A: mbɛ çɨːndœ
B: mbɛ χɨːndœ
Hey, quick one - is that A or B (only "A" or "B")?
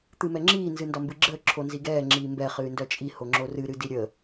B